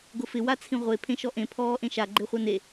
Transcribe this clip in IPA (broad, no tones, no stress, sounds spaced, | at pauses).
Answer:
ɡ ʊ f ɪ w a t͡sʰ ĩ ʁʷ e pʰ ẽ ʃ ɔ ʔ ẽ pʰ ɔː ʔ ẽ ʃ a ɡ͡ǃ e χʷ a n e